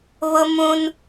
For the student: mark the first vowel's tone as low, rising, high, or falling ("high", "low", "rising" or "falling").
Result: high